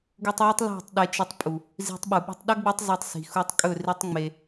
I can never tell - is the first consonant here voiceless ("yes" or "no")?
no